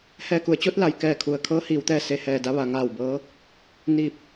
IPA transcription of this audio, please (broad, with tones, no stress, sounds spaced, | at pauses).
h ɛː˧˩ k u˩˧ ə̯ t͡ɕ o˧˥ t̚ l a˩ j k ɛː˧˩ kʰ u˩ ə̯ kʰ ɤː˧˥ h iː˩˧ w t̪ ɛː˧ s e˧˩ h ɛː˧˩ d a˧ ʋ a˩˧ ŋ aː˧˩ w b ɤː˧˥ | n i˧˩ p̚